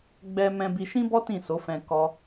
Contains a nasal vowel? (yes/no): yes